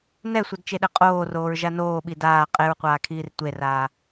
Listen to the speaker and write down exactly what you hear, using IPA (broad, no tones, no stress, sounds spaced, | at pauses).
n ɛ sʷ ʌ d t͡ʃ e ɗ ɛ qʼ oː r oː ɹ ʒ a n oː ɓ i d aː qʼ e ɹ qʷ aː kʰ iː r tʷ e r aː